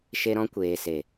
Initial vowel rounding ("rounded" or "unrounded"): unrounded